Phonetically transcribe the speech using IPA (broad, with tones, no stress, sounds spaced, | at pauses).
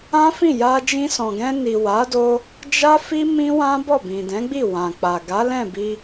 ã˦ f ĩ˦˨ j a˧ d͡ʒ ĩ˧ s ɔ̃˨ ɡ ɛ̃˧ n i˨ w a˨˦ d o˧ | d͡ʒ a˦ f i˦ m ĩ˦ w ã˦ b ɔ˦˨ b ĩ˨ d ɛ̃˨˦ ɡ͡b i˦˨ w ã˨ k͡p a˨ ɡ a˨˦ l ɛ̃˦˨ b i˧